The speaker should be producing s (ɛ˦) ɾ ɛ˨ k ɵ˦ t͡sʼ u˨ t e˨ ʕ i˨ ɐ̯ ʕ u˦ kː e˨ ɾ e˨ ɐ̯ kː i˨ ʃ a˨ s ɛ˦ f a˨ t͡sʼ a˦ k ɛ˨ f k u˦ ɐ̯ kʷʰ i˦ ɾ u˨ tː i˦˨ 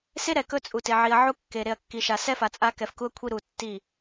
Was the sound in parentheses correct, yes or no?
no